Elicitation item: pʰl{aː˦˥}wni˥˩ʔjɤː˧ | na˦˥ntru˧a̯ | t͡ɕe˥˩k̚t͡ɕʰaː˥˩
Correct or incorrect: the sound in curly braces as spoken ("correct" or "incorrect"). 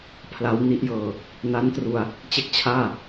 incorrect